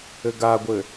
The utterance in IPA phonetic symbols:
ɘɡaɡʷɘ

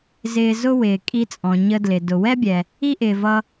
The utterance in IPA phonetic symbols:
zɪː˧zʊ˥wɪː˩ kʼi˧t͡sʼɔ̃˩ ɲə˧dlɪ˩ dʊ˩wɛ˥bʲɛ˩ | i˥ʔɪː˩vʌ˧

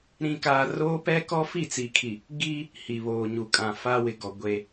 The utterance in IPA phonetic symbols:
ɾĩ˨kaː˨ roː˦pɛ˦kɔ˦ fi˦˨t͡si˨kʰi˨ | ɡiː˦ | hi˨βoː˨ɲu˨ kʼã˨fa˦wɪ˨ɡɔ˨ ɡʷe˦

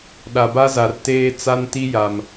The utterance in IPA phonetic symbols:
ɗa˨ba˦za˨r teː˦ t͡sa˦nti˦ja˨m

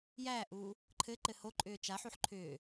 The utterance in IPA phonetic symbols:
jæːʔuː | ǃʰɘǃɘ hoǃʼʏː t͡ʃaħuħ ǃʰʏː

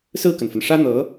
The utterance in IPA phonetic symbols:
sɹ̩˥˩kə˩nfə˩n ʂä˥n̪ɤ˧˥

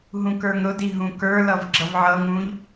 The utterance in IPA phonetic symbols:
ɦũkə˞ŋɾʊdi ɦũkə˞lʌv ɡ͡ǁʌvʕʌŋũʎ

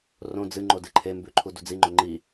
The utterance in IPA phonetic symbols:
rõ d͡zɨ ŋ͡ǃodɨǃʰembʉ ǃʰudud͡ziŋ͡ǃo ŋ͡ǃi

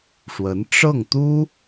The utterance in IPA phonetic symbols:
ʂwə˧˥n ʈ͡ʂɤ˥˩ŋt̪u˥

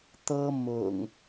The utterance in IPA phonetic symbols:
t̪ɤ˦ mʊ̰˨˩ŋ

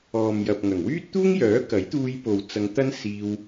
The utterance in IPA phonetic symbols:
ɔː˨mjɐ˨p̚ŋɐ˨˩ŋ wyː˥t̚t̪uː˥ŋjœː˨˥ kɐ˨˥jt̪uː˧jpo˨w t͡sɐ˨˧ŋt̪ɐ˥n siː˧w

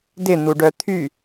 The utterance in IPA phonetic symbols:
dɪn̪uɖœ t̪ʰy

